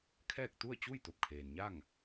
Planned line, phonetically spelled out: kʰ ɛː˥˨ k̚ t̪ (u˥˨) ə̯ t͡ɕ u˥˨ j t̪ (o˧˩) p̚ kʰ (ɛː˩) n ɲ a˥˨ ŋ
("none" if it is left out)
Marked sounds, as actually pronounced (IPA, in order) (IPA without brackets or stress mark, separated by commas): u˥˨, o˧˩, eː˩